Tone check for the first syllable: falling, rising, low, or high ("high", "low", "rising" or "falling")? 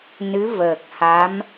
rising